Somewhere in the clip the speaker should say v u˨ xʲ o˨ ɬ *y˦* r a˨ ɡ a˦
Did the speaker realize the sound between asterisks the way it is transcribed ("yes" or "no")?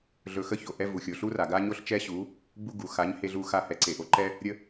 no